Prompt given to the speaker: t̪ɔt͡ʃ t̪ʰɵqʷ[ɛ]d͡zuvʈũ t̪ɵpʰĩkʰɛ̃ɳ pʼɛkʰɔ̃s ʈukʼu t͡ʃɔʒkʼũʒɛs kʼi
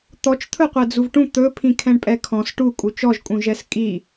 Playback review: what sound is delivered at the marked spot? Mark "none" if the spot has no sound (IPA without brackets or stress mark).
ɛ